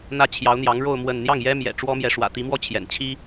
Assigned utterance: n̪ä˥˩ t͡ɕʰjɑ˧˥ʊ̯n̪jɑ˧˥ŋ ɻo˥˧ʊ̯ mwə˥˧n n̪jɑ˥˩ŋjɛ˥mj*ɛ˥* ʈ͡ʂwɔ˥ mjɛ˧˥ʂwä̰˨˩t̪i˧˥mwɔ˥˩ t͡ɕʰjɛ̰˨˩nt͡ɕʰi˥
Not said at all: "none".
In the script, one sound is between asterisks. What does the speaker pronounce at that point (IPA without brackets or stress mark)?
ɛ̰˨˩